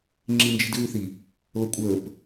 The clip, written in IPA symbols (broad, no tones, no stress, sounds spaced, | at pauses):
ŋ͡ǁ i n d͡ʒ i̤ d ɣ ʉ θ i | l ɤ kʷʼ əː p